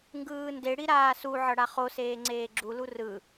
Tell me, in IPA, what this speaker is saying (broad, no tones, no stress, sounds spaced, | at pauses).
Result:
ŋ ɡ ɯː n d e ɽ i ɾ aː s u ʕ ʌ ɽ a χ o s eː ŋ͡ǀ eː ɡ͡ǁ u l u r ɯ